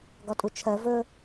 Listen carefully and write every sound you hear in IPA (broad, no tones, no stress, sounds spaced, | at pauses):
ɡ ɒ tʼ u t͡ʃʰ ɜ v ɵ